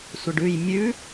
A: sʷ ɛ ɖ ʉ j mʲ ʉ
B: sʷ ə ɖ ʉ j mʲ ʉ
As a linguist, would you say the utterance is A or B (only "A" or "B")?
B